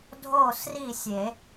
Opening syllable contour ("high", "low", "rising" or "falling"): falling